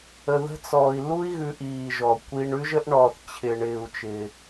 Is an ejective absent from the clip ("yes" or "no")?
yes